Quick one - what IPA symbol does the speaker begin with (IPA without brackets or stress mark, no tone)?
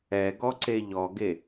ɛ